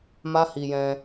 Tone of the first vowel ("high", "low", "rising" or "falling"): high